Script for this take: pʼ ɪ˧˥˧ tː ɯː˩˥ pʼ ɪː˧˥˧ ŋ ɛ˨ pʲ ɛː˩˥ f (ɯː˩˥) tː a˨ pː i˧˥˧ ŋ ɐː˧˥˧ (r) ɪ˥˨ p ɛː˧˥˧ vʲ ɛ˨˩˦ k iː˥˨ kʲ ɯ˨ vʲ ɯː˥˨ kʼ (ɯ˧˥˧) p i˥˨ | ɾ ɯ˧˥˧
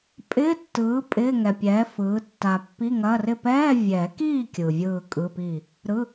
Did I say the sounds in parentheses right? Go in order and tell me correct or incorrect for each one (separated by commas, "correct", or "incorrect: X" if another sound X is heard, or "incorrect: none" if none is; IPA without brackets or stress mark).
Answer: correct, correct, correct